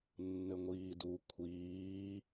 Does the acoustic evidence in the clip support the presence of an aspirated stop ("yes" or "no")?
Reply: yes